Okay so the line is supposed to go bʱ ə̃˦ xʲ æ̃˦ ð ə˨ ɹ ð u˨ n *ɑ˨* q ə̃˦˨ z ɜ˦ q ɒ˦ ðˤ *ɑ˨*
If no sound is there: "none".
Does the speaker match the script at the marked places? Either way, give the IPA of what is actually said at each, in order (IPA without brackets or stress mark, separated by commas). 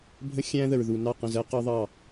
ɑ˦˨, ɑ˦˨